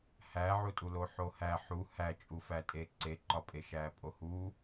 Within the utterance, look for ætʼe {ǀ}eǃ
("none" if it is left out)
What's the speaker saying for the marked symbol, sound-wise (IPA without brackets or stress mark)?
ǀ